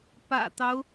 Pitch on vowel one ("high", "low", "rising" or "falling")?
low